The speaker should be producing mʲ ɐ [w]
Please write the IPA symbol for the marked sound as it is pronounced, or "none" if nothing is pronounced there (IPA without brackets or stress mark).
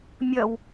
w